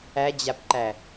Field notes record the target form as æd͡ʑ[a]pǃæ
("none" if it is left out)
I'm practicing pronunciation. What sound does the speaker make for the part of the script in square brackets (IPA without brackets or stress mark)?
a